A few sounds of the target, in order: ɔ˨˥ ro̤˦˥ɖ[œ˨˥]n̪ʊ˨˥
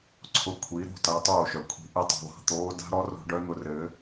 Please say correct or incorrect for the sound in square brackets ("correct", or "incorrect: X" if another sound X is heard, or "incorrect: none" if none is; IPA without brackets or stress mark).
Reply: incorrect: œ˦˥